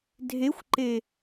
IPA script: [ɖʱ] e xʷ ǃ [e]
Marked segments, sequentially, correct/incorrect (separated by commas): incorrect, correct